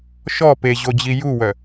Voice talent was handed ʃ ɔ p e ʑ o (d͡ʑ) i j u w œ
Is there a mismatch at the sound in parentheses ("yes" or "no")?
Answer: no